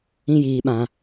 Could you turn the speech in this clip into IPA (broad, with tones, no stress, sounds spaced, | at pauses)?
ĩ˦ j iː˨ ɓ ã˨